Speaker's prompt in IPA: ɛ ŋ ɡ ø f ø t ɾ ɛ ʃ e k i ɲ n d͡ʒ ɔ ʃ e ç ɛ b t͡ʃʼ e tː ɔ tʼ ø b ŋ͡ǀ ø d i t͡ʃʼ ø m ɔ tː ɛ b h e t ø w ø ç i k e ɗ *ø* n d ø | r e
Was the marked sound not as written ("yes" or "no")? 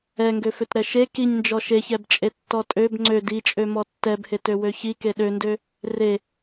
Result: no